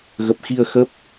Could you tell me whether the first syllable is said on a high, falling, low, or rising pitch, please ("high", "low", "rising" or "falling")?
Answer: low